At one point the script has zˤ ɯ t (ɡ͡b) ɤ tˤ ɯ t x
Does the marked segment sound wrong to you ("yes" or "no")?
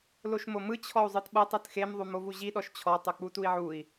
yes